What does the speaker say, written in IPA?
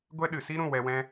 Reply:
ɡʷ ɛ˦ ɗ ɨ˨ s i˦ ɾ ũ˦˨ w ɛ˧ w ɛ̃˦

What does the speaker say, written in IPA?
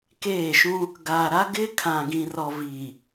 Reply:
k eː˦˨ ʃ ũ˦ | ɡ aː˨ ɾ a˦ ɡ ɪ˦ kʰ ã˨ ɡ ĩ˨ r ɔ˨ v iː˨

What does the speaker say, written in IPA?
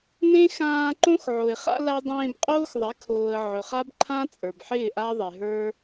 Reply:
n ẽ˦ x ãː˧ ǃ õ˦ x ʕ o˨ ɪ̯ χ a̰˦ l a˦ dˤ ẽː˧ b qʼ oː˦ x ðˤ ɪ˨˦ kʰ oː˨ ə̯ ʕ ɵ˨ χ a˦ b ǃʰ ã˦ t͡sʼ ə˞˨ b ħ ɪː˦˨ ʔ a˦ ðˤ e˨ ɦ ə˞˦

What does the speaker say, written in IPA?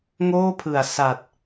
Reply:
ŋ oː˥˩ pʰ ɯ˨˩ a̯ s a˨˩ t̚

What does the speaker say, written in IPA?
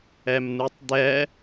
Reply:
ɛ m n̪ u tˤ d̪ ɛ

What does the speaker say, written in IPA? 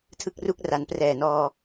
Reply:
tʰ ɯ˥˩ k̚ r u˥˩ k̚ r a˩˦ n p r ɛː˨˩ n ɔː˧

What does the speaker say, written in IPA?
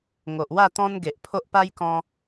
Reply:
ŋ o˨ ʔ w a˥˧ t̪ ɔ̃˦ n ɡ e˨ ʔ pʰ o˦ ʔ p a˦ j k ɔ̃˦

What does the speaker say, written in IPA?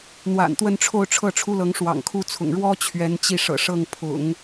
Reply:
n̪ w a̰˨˩ n t̪ w ə˥˧ n ʈ͡ʂʰ o˥˧ ʊ̯ ʈ͡ʂʰ ɤ˥˩ ʈ͡ʂʰ u˥ l ɤ˧˥ ŋ ʂ w ɑ̰˨˩ ŋ kʰ u˥ t͡sʰ ʊ̰˨˩ ŋ ɻ w ɔ˥ t͡ɕʰ ɥ ɛ˧˥ n t͡ɕ i˥˩ ʂ ɤ̰˨˩ ʂ ɤ˥˩ ŋ pʰ ʊ̰˨˩˦ ŋ

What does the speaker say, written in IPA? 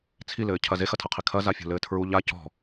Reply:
t͡sʰ i l ɘː cʰ ɐ z e x ɐ tʰ ɐ qʰ i kʰ ɐ z a fʲ o̤ l ɘː tʰ ɹ u ʎ a c ɔ̤

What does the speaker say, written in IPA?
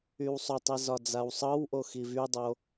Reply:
y w sˤ ʊ tˤ i z ɒ d͡z a w sˤ ɤ w ʔ o x i v y dˤ o

